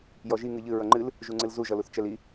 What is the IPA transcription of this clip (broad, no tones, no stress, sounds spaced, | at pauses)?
j ɔ ʒ i ŋ ɨ ʎ ɨ ɹ ʌ ŋ͡ǃ ɨ l | ʒ u ŋ͡ǀ ɨ l z u ʒ ʌ l u θ t͡ʃ ɛ l i